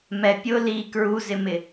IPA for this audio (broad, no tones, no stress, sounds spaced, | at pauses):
m ɛ pʲ ʊ l i k ɹ u z ɪ m ɪ